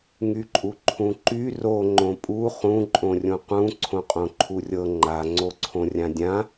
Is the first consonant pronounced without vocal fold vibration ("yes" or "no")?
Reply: no